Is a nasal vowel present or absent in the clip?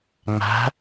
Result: absent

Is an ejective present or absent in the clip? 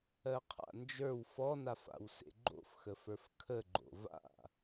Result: absent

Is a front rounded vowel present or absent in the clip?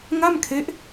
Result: absent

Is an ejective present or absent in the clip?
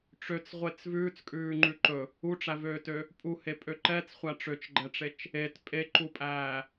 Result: present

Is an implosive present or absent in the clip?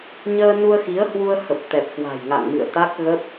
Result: absent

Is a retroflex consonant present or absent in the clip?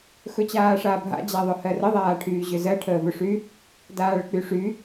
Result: present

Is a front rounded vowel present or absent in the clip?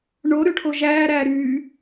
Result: present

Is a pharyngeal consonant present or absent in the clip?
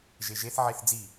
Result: present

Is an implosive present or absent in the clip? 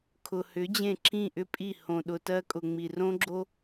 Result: present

